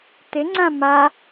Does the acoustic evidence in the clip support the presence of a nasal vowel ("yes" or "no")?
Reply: yes